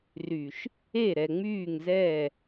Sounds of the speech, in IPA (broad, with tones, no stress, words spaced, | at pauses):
ry˨ʃ | e˦˨ɾɛ˨ŋ͡myː˦˨ŋzɛː˦˨